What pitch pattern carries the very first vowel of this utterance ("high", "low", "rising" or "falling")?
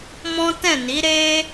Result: high